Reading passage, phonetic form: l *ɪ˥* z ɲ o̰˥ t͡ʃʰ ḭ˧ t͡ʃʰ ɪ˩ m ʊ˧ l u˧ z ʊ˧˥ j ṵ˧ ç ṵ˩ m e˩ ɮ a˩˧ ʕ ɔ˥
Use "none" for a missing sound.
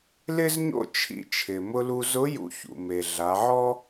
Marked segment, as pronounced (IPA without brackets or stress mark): ɪ˥